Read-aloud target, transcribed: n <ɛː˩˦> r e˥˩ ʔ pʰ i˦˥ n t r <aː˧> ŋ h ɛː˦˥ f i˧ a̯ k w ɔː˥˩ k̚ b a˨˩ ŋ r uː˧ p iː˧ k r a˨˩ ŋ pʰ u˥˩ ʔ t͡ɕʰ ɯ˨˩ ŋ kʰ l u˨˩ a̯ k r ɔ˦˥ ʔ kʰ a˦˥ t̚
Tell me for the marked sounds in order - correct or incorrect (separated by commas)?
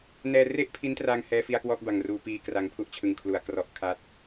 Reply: incorrect, correct